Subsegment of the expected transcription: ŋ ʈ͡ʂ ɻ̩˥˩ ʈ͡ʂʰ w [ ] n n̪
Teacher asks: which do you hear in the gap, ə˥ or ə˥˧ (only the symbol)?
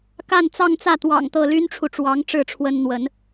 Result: ə˥